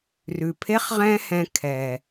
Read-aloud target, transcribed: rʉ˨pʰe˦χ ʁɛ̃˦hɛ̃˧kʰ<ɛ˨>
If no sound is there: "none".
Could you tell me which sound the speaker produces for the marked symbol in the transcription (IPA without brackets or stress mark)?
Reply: ɛ˨